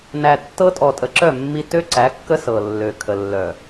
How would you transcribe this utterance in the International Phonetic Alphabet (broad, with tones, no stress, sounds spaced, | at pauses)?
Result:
n æ˨ tː ɤ˦ tʼ ɔ˨ tʼ ə˨ ǁ œ˦˨ mː i˦ t ø˦ ǀ æ˨˦ kː ə˦ s ɤ˨ lː ø˨ kʰ ə˨ lː œ˨